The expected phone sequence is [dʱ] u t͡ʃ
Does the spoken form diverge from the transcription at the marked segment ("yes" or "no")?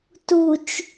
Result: yes